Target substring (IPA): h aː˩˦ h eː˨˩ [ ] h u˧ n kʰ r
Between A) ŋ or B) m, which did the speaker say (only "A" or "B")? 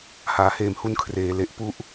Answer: B